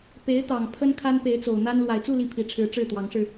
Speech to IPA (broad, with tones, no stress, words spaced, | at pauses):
pe˧˥ɪ̯t̪ɑ˨˩ŋ pʰə˥n kʰa˥npe˧˥ɪ̯t͡so˨˩ʊ̯n̪a˥n lwa˨˩ɪ̯t͡su˥˧ li˥˩pʰi˧˥ʈ͡ʂʰɻ̩˧˥ ʈ͡ʂɻ̩˥˩t̪wɑ˧˥ŋʂɻ̩˧